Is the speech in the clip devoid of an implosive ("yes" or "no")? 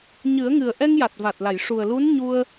yes